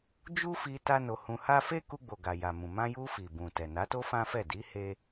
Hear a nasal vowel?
yes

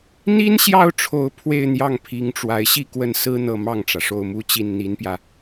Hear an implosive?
no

